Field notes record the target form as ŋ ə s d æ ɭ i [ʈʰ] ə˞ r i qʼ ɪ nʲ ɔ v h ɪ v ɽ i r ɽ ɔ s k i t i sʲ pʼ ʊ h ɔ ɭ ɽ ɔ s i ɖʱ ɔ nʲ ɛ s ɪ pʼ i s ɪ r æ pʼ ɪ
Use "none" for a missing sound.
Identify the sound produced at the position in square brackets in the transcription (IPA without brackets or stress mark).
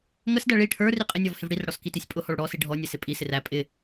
ʈʰ